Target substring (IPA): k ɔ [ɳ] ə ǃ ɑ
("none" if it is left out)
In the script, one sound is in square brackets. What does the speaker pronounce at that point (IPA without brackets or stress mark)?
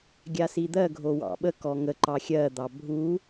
ŋ